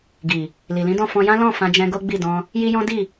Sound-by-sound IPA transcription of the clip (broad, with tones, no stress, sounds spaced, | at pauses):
ɡ i˨ | l i˨ l ĩ˨˦ d ɔ̃˦˨ f ɔ̃˧ j ã˦ l ɔ̃˦˨ f ã˧ d͡ʒ ɛ̃˧ ɡ o˦ ɡ͡b i˦˨ d ɔ̃˧ | j i˦ j ɔ̃˦ d i˦˨